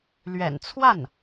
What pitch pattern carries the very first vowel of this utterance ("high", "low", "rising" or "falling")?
low